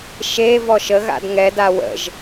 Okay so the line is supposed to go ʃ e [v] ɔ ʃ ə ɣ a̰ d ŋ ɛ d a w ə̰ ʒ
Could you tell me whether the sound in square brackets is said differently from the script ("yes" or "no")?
no